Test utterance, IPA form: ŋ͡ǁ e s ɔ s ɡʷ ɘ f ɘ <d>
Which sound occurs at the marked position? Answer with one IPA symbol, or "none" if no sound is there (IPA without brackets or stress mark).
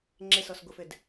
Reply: d